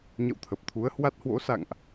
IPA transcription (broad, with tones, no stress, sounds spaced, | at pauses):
ɲ ə̰˧˨ w t̪ʰ ə˨˩ p̚ t̪ʰ u˨˦ ə̯ h w a˦˥ t̚ h w o̰˧˥ s a̰˧˨ ŋ ʔ